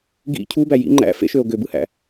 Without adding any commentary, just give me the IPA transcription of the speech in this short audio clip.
ɡ ḭ cʰ u b æ j ḭ ŋ͡ǃ æ̰ f ḛ ʃ ø o̯ ɡ ø b ɯ h æ̰

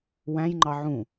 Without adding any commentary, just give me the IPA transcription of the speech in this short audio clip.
w æ̃ j ŋ͡ǃ ɑ ʕ ũ

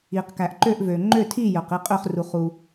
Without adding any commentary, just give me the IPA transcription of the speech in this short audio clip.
i˩ q k æ˩ ʔ ǃ ø˥˨ ʔ v ø˩ ŋ͡ǃ ø˥˨ tʰ i˥˨ j œ˩ q i˥˨ qʼ ø˥˨ χ r u˩ χ u˩

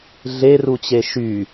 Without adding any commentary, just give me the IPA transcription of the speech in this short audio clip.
ɮ e r u t͡ɕ e ʃ y

